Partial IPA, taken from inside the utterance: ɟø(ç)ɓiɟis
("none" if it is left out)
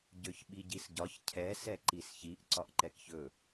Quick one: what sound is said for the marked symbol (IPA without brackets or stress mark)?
ç